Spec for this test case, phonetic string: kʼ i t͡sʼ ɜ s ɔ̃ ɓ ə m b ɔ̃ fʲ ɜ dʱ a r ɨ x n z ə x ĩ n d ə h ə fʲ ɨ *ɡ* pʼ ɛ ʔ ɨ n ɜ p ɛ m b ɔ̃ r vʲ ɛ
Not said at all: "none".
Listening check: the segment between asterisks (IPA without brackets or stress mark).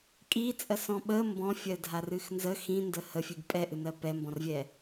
ɡ